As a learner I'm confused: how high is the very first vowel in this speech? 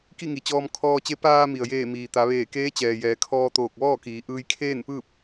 high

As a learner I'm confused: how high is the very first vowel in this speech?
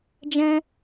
mid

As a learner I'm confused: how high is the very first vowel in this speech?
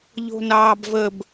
mid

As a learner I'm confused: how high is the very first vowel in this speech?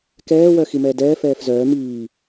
mid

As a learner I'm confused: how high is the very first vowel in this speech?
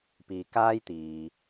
high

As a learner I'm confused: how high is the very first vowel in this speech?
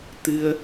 high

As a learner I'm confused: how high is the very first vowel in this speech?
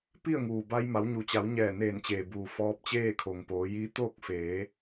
high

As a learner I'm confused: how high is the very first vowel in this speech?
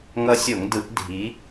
mid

